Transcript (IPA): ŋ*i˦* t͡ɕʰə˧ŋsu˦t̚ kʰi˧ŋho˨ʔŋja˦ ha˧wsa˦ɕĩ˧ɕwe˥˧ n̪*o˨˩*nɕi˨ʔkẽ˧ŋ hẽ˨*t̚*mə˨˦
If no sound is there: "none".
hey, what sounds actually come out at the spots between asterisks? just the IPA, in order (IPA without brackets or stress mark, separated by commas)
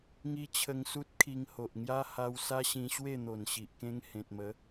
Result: i˦, o˨˩, t̚